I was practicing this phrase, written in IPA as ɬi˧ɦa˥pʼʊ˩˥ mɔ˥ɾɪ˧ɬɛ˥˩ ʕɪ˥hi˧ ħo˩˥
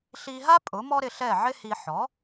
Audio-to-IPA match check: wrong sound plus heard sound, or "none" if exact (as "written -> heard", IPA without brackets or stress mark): o˩˥ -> ɔ˩˥